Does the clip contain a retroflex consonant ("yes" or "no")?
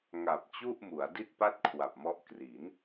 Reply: no